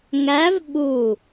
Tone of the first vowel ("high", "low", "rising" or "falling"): rising